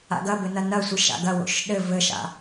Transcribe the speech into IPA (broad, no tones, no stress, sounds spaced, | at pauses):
a̰ ɡ ɐ b ɘ n ɐ n ɐ sʷ ɨ ʃ a̰ ɡ ɐ w o̰ ʃ ɗ ɘ v ɘ ʃ a̰